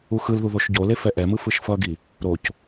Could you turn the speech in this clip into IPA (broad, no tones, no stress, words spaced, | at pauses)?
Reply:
uxɯlðu ðoʃɟole fɛʔɛmɯ fɯʃfʌɡi | ɾoc